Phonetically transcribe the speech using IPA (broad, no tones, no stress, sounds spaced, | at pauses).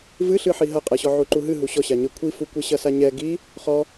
v ɨ ɬ ɨ ħ i ɦ ɐ qʼ ɛ ɕ ɔ ʕ u ǃ u ɦ ɨ ɦ u ɕ ɔ ɕ a ɲ ɘ kʷʰ i f u kʷ e ɕ ɐ s a ɲ ɛ ɡ i | χ ɔ